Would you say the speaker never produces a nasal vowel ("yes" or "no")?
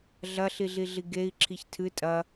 yes